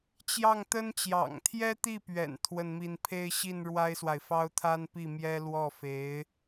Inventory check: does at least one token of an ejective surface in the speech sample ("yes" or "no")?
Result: no